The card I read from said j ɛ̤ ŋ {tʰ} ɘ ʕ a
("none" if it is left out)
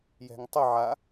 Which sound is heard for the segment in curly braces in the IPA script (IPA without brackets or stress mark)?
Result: tˤ